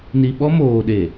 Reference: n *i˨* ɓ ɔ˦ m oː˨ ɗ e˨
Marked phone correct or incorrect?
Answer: correct